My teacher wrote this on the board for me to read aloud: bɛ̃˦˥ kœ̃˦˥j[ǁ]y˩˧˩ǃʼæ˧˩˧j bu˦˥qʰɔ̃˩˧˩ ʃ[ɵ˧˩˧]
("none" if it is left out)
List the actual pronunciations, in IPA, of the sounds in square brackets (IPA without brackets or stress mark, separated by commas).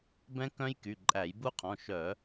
k, œ˧˩˧